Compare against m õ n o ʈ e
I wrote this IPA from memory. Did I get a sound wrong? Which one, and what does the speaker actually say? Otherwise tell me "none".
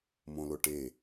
n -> l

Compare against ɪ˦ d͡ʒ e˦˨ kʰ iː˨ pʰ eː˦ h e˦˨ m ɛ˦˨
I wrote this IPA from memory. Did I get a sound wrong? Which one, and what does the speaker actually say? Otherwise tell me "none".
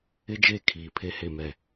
eː˦ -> e˦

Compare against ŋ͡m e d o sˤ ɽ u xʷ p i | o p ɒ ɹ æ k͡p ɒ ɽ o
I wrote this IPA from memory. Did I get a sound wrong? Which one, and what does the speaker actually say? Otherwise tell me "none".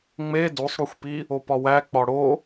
ɹ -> w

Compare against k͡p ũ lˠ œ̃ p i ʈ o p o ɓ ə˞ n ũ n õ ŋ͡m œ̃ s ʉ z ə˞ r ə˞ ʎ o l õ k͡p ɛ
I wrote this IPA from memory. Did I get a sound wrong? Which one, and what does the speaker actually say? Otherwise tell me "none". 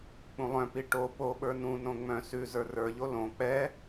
none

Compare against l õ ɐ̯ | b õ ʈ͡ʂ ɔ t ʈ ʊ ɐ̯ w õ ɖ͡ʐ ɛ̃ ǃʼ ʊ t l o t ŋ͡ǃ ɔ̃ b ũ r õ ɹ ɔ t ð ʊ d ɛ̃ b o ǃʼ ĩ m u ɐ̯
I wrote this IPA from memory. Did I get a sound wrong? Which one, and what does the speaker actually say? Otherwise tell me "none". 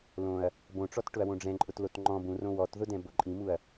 ɹ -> w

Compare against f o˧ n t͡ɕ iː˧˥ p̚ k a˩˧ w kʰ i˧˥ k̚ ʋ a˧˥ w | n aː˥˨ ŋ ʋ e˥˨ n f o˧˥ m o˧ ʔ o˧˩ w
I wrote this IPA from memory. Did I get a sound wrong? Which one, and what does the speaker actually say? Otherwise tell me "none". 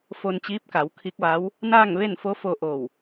m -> f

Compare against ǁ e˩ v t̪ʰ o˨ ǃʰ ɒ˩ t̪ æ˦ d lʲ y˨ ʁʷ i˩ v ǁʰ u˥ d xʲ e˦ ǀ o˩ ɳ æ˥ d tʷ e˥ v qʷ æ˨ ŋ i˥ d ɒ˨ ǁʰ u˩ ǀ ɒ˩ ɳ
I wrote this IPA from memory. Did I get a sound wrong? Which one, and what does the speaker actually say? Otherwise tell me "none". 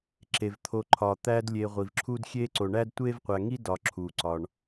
y˨ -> e˨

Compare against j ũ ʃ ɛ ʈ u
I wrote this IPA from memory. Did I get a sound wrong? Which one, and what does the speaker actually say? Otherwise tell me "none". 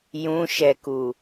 ʈ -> k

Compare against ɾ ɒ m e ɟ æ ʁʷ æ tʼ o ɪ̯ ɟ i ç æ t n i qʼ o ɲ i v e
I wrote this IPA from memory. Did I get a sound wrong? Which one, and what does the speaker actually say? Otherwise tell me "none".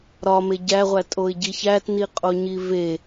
none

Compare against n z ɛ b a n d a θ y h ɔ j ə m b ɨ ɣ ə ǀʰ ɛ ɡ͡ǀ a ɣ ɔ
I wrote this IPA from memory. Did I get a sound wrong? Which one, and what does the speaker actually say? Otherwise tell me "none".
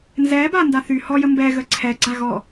ɨ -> ɛ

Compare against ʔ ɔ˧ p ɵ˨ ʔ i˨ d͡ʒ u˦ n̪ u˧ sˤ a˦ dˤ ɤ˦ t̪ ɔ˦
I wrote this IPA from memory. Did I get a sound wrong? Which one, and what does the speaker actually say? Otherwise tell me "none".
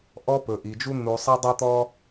none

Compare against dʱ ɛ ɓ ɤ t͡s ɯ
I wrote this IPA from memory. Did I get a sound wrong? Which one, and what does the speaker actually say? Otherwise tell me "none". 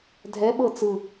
none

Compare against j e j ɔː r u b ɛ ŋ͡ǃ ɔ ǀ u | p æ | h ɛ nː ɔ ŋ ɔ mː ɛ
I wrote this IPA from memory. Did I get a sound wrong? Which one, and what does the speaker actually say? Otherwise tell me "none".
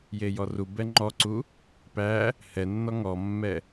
ɔː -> ɔ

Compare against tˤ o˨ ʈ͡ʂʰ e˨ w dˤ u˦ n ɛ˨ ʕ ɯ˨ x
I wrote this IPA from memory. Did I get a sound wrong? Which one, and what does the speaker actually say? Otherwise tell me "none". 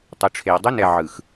none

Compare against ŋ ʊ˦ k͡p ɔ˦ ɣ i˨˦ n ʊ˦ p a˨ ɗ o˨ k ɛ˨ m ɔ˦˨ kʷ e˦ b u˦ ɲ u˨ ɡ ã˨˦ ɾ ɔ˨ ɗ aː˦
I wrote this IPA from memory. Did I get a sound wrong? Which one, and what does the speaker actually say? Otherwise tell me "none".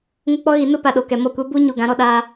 none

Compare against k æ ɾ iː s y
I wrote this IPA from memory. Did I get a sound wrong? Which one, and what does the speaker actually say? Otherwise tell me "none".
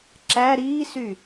k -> ǁ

